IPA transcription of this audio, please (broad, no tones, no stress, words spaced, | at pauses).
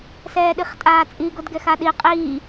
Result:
sɛːɗiχtʼaːt͡sʼi ɡodɡɛxaɗi qʼiː